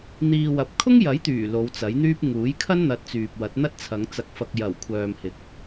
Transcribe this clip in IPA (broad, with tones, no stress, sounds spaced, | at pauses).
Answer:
n̪ iː˨ w ɐ˨ p̚ kʰ ʊ˥ ŋ j ɐ˨˥ j t̪ yː˨˩ l o˨˧ w t͡s ɐ˨˥ j n̪ yː˥ p̚ ŋ uː˨˥ j kʰ ɐ˥ n n̪ ɐ˨ t̚ t͡s yː˨ p̚ w ɐ˨˥ t̚ n̪ ɐ˥ t̚ t͡sʰ ɐ˨˧ ŋ t͡s ɐ˨ k̚ f ɐ˨ k̚ j ɐ˨˩ w kʷʰ œː˨ m h ɪ˨˥ k̚